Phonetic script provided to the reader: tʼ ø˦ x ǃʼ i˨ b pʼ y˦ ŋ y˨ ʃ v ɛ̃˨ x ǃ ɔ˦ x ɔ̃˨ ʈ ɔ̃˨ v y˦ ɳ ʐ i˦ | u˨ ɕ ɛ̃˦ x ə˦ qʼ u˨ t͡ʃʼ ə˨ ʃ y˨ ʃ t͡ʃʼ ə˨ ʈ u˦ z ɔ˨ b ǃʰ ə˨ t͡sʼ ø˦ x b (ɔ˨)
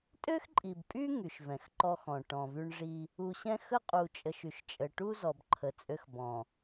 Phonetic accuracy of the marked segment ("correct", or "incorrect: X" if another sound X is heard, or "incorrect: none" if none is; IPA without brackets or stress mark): incorrect: ɔ̃˨